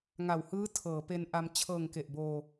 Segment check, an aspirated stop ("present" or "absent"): present